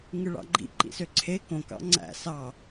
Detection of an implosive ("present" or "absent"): absent